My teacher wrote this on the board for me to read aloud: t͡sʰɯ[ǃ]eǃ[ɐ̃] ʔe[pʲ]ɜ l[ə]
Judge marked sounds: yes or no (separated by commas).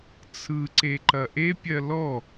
no, no, yes, no